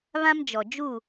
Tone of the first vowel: high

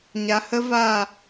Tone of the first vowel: low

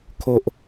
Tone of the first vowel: high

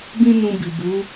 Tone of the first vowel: high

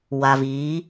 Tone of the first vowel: low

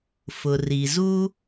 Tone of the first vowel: low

